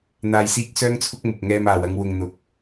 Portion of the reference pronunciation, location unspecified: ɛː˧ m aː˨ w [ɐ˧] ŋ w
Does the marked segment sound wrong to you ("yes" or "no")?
no